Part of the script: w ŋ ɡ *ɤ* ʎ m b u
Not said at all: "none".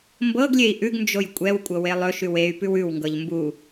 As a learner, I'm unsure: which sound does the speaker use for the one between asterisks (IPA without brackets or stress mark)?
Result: ɤ